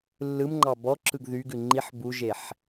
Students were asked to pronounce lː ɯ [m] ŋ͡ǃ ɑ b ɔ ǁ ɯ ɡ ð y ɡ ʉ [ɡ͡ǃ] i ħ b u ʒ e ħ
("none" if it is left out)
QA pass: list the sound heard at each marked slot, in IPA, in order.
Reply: m, ŋ͡ǃ

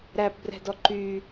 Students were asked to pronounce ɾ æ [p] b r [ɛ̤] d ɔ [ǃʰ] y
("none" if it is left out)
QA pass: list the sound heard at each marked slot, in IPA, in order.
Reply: p, ɛ̤, ǃ

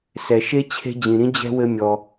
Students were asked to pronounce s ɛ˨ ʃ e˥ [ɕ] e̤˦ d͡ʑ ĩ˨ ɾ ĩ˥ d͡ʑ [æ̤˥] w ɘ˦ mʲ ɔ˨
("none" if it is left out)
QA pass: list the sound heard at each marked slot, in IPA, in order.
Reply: t͡ɕʰ, ɛ̤˥

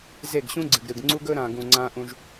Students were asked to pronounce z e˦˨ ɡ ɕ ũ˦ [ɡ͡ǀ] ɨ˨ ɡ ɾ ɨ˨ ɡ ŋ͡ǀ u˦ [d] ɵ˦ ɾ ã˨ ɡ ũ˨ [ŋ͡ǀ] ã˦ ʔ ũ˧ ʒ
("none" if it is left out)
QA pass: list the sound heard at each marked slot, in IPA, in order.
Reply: ɡ͡ǀ, ɡ, ŋ͡ǀ

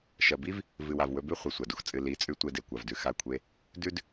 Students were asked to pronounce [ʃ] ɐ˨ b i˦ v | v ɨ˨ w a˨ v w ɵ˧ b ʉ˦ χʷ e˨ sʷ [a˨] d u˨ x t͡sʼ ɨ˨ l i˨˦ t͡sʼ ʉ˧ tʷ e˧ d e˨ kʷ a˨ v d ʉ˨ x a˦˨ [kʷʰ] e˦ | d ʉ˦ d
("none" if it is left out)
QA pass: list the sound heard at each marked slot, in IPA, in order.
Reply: ʃ, a˨, kʷʰ

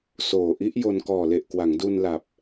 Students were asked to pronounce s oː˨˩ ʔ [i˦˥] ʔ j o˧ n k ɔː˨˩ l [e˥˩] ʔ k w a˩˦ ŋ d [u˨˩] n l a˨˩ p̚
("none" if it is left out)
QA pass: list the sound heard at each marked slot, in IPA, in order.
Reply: i˦˥, e˨˩, u˧

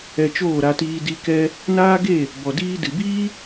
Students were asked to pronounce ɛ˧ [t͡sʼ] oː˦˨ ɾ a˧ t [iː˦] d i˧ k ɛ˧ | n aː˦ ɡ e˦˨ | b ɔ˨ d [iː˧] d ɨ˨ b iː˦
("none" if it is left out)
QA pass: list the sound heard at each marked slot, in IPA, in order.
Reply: t͡ʃ, iː˧, iː˧

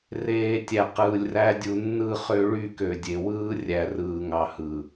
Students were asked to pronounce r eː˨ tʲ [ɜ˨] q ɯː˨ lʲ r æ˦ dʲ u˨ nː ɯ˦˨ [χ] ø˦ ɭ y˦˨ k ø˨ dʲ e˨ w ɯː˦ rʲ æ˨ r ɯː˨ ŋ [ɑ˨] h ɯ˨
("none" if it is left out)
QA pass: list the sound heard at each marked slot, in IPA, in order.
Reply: æ˨, χ, ɑ˨

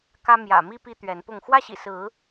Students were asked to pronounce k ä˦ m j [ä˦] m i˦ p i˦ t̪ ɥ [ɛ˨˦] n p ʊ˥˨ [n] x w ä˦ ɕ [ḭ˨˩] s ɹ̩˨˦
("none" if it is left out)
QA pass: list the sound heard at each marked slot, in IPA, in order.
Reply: ä̰˨˩, ɛ˨˦, ŋ, ḭ˨˩

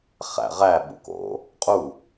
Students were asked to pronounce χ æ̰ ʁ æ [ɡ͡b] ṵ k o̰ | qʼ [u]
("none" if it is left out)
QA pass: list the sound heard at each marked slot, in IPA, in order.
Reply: ɓ, u

